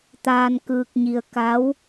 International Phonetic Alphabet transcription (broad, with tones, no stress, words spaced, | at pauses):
t̪aː˧nkɯː˧k̚ɲi˧ə̯ ka˧˥w